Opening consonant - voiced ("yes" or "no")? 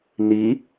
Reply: yes